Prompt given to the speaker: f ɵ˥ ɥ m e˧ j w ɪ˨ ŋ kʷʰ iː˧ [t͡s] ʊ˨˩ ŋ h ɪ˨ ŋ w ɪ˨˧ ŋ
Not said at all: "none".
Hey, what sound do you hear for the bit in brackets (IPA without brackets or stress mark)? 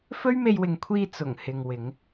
t͡s